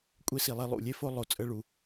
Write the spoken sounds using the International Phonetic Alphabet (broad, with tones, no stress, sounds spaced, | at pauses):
kʷʼ e˦ s i˨ lˠ e˦ lˠ ṵ˩ lʲ e˥ f o˦ lˠ o˨ t͡sʼ ə˦ ɭ u˨